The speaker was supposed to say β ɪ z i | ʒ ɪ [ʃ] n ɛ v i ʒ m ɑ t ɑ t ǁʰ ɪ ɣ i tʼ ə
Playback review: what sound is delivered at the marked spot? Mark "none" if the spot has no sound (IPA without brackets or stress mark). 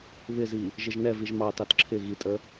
ʒ